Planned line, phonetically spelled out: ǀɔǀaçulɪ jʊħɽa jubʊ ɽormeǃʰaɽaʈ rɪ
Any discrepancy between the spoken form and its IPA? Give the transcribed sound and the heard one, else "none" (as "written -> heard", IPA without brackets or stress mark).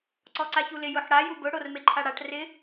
none